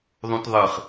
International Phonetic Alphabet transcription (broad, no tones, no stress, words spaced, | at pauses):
ðˤũtðˤɨχ